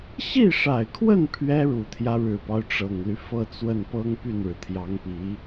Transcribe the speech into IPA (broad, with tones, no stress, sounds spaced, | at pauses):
ɕ i˥˩ ʂ a˨˩ ɪ̯ kʰ w ə˥˩ n pʰ ɥ ɛ˥ ɻ u˨˩ t̪ʰ j ä˦ ɻ ɻ̩˨˩ p ɑ˦ ʊ̯ ʈ͡ʂ ɤ˨˩ ŋ l y˦ f ɤ˥˧ t͡s w ə˥˩ n p ɤ˥ ŋ p y˥˩ n ɻ ɻ̩˩ t̪ʰ j ɑ˧˥ ŋ p i˧˥